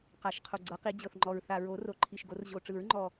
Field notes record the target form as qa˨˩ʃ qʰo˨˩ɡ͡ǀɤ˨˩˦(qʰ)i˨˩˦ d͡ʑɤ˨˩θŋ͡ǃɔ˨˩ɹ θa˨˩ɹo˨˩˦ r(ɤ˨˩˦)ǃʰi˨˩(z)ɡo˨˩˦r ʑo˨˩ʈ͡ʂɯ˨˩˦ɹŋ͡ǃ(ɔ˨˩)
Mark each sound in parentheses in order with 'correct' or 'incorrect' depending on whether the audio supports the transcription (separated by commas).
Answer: incorrect, incorrect, incorrect, correct